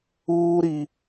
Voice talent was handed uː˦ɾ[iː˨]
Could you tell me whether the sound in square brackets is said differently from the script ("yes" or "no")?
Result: yes